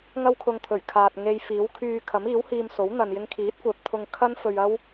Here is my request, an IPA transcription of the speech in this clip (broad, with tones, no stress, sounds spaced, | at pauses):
ŋ ɐ˥ w kʰ ʊ˧ ŋ t̪ʰ ɵ˨˩ ɥ kʰ aː˨ t̚ ŋ e˧ j f iː˨˥ w kʰ yː˧ kʰ ɐ˨˥ m iː˨˥ w h iː˧ m s o˨˥ w n̪ ɐ˨ n j ɪ˧ ŋ kʰ iː˨˥ t̚ kʷ œː˨ p̚ t̪ʰ ʊ˧ ŋ kʰ ɐ˥ n f ɵ˧ ɥ ɐ˥ w